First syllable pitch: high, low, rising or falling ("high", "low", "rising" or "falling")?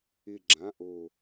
low